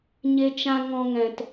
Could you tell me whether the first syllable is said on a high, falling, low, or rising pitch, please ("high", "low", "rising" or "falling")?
high